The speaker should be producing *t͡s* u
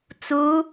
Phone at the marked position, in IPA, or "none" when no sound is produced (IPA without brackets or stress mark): t͡s